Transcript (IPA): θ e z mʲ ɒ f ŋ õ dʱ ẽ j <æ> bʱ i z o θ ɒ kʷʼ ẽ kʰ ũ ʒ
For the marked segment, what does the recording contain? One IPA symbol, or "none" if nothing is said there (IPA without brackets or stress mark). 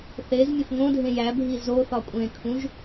æ